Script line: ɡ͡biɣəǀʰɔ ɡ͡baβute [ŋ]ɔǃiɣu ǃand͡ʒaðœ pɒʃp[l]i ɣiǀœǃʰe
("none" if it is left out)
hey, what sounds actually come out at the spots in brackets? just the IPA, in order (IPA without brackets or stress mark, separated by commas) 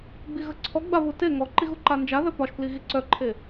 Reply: ŋ, l